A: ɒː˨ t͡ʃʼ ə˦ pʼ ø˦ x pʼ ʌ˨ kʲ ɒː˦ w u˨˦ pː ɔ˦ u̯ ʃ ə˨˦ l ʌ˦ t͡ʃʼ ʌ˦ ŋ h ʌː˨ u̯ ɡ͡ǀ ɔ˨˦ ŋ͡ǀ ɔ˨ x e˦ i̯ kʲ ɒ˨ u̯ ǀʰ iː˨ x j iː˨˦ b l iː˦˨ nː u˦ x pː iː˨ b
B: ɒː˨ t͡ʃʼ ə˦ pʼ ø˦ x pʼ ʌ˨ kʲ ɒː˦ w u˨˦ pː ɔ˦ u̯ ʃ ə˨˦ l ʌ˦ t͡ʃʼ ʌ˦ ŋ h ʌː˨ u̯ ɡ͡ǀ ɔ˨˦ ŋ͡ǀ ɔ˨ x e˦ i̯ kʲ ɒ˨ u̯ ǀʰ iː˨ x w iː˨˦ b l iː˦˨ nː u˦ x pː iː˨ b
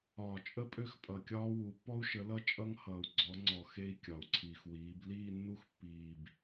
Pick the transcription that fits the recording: B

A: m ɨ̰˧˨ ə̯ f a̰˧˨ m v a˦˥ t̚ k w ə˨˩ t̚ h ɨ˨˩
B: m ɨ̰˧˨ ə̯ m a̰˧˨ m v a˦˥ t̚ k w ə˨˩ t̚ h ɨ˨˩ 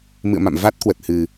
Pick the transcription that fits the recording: B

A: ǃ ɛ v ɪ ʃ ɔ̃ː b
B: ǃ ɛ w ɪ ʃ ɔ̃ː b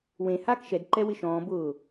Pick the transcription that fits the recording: B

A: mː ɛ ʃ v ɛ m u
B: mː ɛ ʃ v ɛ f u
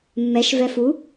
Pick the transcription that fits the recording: B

